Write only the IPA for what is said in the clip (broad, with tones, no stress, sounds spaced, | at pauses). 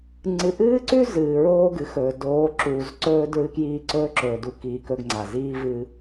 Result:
ŋ͡ǀ ɨ˨ ʔ ɨː˦ ǀ ʉ˦ z ɨː˨ ɹ oː˦ ɡ ɨ˨ x ɵː˨ d oː˨˦ ǁ uː˨ z ǀ ɵː˦ d ɹ ɨ˦ k j iː˦ ǀ ɵː˦ ǁ ɵː˨ d u˨ k iː˨ k ɵ˦ ɡ ŋ͡ǀ a˨ z iː˦ v ɨː˦